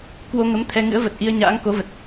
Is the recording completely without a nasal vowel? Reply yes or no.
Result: yes